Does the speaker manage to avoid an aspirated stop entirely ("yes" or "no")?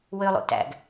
yes